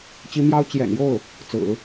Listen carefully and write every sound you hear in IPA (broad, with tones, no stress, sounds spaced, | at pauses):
t͡ɕ i˧˥ m j ɑ˥ ʊ̯ t͡ɕ j ɛ̰˨˩ n j o˥˩ ʊ̯ | t͡s ɹ̩˨˩˦